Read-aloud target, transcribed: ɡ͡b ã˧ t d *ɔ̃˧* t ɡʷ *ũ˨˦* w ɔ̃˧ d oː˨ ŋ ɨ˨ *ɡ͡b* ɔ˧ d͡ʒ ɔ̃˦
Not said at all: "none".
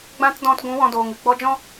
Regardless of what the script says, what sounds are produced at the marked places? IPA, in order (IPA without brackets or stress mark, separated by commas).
ɔ̃˧, ũ˨˦, ɡ͡b